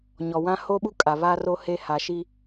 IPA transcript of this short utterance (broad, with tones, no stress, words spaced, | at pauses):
ɲɔ˨wã˦ ho˦ɓu˦kʼa˨ βaː˦ro˦heː˦ ha˨ʃi˦